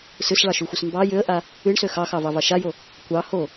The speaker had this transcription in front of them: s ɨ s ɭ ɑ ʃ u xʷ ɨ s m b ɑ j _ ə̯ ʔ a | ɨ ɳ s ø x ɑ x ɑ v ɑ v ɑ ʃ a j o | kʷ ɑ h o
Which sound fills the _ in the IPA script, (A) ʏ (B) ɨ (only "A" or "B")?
A